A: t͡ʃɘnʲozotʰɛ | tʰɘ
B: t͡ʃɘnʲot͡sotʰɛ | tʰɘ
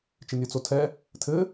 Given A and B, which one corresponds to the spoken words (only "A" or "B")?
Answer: B